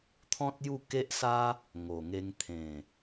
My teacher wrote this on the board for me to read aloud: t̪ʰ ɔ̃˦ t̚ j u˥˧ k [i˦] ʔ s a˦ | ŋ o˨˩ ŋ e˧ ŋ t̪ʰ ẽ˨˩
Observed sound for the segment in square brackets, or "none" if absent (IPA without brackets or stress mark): e˦